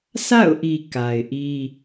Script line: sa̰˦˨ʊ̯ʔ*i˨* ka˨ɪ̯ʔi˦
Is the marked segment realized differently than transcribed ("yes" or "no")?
no